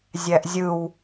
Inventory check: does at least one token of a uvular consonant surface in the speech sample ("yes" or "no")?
no